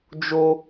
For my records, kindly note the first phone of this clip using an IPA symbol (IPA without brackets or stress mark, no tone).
d͡ʒ